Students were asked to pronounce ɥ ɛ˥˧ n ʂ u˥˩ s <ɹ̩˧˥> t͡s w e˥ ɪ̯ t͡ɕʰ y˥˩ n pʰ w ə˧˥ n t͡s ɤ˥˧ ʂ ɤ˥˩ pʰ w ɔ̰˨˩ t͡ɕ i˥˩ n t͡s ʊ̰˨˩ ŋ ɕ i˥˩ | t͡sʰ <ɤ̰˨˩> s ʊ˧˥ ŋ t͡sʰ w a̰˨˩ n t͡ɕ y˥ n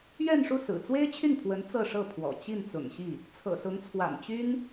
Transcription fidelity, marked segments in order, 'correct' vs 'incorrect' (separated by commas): incorrect, correct